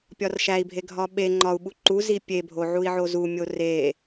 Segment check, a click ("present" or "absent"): present